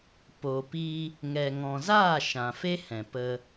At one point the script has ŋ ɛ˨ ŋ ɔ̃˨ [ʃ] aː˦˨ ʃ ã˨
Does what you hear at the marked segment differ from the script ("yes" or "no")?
yes